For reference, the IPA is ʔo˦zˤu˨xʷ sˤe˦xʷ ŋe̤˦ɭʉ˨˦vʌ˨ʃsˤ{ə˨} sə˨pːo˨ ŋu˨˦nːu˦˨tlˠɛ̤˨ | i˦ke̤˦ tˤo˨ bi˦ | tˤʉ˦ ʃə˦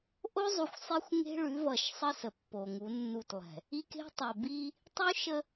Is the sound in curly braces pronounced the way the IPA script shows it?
no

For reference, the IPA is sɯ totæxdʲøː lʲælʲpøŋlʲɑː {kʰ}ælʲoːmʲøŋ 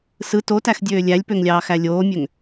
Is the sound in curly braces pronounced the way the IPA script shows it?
no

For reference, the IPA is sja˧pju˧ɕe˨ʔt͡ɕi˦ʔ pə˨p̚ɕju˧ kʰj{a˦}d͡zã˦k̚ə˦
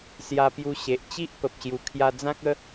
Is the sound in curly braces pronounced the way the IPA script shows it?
no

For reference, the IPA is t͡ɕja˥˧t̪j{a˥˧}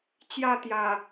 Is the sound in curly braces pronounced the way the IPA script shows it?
no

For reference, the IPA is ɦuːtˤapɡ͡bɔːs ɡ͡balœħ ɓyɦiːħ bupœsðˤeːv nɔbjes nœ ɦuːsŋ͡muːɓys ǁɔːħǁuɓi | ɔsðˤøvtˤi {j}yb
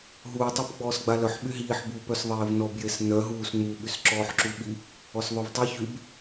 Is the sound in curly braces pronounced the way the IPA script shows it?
no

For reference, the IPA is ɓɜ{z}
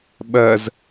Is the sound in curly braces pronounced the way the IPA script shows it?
yes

